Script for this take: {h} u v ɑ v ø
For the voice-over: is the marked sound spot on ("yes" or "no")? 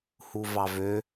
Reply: yes